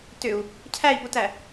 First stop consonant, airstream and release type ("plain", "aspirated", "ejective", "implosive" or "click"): plain